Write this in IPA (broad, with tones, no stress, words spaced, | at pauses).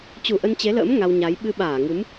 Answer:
t͡ɕu˧˩ʔə˧nt͡ɕe˨˦lə̰ː˧˥m ŋa˧wɲa˨˦j ɓɨ˧ɓaː˧˩ŋɨ˨˦m